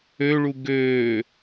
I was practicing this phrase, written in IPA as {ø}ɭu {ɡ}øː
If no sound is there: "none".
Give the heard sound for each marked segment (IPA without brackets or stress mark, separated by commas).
ø, ɡ